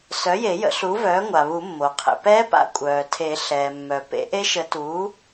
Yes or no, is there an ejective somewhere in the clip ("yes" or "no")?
yes